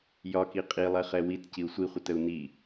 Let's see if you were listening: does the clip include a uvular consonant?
yes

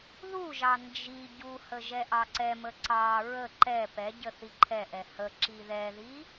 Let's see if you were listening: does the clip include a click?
yes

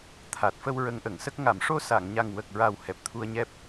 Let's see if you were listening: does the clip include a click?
no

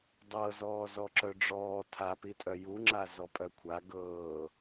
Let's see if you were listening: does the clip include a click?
yes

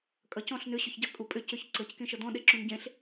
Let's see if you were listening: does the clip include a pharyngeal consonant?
no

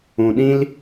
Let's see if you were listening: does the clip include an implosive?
yes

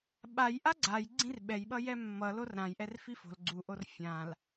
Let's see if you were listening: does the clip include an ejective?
no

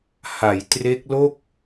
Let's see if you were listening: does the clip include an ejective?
no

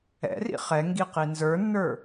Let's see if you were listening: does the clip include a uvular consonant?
yes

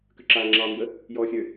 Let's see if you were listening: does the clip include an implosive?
no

